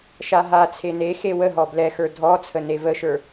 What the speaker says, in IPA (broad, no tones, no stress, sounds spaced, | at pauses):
ʃ a ɦ a t͡sʰ e n e x e w ə ɦ ɔ b l ɛ x ə˞ dʱ ɔ t͡sʰ ə n e v ə ʃ ə˞